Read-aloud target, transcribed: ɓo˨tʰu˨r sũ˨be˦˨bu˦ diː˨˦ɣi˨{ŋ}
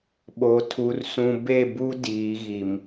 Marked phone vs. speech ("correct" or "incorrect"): incorrect